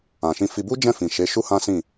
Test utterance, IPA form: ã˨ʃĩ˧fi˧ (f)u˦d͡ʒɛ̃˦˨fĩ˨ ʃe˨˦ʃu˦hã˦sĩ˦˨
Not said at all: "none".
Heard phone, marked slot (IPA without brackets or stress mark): b